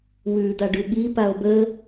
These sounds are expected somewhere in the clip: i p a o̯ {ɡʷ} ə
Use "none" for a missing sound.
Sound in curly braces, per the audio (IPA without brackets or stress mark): b